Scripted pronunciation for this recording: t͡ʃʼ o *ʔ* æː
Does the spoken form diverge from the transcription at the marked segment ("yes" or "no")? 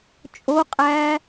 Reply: yes